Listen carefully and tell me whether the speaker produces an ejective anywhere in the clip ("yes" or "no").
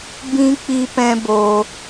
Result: no